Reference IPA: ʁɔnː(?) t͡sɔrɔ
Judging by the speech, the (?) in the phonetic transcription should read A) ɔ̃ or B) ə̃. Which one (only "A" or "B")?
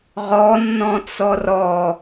A